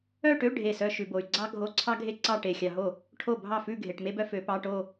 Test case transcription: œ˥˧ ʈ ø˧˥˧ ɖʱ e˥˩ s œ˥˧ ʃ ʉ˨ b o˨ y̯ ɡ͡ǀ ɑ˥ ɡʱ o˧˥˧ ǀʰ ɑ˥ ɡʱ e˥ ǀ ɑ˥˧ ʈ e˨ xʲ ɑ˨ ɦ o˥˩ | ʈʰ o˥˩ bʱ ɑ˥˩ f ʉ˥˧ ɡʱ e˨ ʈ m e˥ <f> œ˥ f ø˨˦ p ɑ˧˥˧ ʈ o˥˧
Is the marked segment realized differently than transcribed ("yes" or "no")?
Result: yes